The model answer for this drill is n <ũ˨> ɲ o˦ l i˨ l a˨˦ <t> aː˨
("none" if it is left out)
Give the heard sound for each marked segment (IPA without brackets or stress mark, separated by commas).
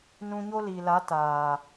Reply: ũ˧, t